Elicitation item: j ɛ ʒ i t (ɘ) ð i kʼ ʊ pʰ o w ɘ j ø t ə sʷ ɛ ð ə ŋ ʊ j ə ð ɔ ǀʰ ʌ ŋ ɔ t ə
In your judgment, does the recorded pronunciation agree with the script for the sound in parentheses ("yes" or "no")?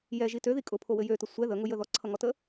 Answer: no